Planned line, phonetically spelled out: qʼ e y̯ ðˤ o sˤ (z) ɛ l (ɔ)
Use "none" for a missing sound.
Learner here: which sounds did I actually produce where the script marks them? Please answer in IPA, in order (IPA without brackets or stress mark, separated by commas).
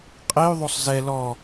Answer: z, ɔ